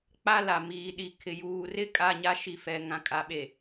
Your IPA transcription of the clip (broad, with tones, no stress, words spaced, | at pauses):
k͡pa˦la˨ miː˨ɗi˨ kʰɪ˨ juː˨rɪ˦ kʼa˦˨ɲa˦ ʃi˨fɛ˨ ŋã˨kʼa˨ɓe˨